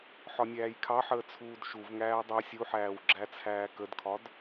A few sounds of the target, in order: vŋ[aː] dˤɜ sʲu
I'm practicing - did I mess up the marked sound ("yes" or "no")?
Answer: yes